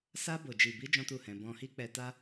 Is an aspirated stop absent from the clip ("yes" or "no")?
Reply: yes